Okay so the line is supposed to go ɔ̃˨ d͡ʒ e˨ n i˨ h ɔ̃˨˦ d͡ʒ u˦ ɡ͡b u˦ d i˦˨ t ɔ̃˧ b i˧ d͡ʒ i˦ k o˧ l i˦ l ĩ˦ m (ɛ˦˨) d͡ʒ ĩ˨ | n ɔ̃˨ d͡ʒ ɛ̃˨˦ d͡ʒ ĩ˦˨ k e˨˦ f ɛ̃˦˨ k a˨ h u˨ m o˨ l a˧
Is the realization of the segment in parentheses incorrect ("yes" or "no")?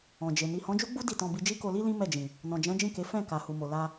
no